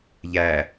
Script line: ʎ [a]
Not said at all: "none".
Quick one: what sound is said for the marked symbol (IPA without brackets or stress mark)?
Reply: æ